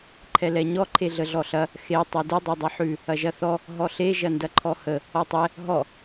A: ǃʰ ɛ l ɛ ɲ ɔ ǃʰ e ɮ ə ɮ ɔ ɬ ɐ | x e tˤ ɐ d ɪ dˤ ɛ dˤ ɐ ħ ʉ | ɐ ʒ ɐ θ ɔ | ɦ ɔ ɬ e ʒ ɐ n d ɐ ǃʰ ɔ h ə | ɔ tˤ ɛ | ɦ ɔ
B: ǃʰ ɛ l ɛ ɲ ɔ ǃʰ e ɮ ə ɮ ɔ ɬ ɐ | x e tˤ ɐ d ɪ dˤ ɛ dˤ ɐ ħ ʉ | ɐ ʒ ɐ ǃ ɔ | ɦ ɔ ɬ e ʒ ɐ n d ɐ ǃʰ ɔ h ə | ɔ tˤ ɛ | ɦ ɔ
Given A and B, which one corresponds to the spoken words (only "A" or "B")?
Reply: A